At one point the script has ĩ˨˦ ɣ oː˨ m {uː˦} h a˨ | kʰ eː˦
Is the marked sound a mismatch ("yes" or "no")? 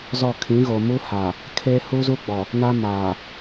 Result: no